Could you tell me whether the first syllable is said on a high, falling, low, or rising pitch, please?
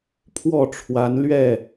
falling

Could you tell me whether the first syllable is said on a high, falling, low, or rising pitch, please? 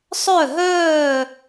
falling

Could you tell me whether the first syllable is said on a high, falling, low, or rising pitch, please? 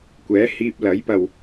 rising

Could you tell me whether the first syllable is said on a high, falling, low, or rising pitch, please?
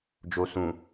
low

